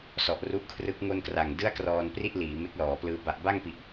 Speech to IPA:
sɔ˨˩ʔru˦˥ʔkʰrɯ˦˥k̚ ŋo˥˩nkra˨˩ŋ dɯ˥˩a̯krɔː˧npri˥˩ʔ liː˩˦me˦˥k̚lɔː˩˦plɯː˦˥ ba˨˩ʔba˥˩ŋpi˨˩ʔ

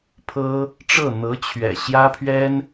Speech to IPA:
pʰɤ˥ | ʈ͡ʂɤ˥˩ n̪ɤ˧˥t͡ɕʰɥɛ̰˨˩ ɕjä˥pʰɥɛ˥n

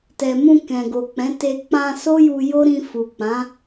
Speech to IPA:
tɛ˨mũ˧ kɛ̃˨ɡo˨k͡pɛ̃˨˦ te˧ k͡pã˧ so˦ju˧jo˦ɾĩ˧ fu˨k͡pã˨˦

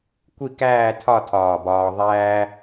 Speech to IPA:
kʷi˥˧kæː˥˧ tʰɒ˥˧ tʰɒː˧˩bɒː˧ ðˤæː˥

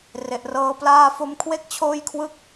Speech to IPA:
re˨˩ʔrɤː˧ plaː˧fo˧mkʰwe˥˩k̚ t͡ɕʰoː˥˩jkʰwɯ˥˩k̚

